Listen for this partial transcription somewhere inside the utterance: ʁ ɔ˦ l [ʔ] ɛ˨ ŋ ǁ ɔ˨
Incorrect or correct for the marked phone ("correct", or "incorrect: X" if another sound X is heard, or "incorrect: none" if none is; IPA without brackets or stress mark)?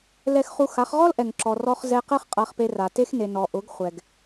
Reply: correct